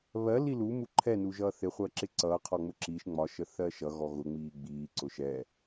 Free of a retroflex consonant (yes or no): yes